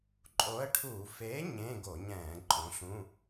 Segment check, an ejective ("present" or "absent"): present